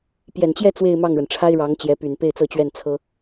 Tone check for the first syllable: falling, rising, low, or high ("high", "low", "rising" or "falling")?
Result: low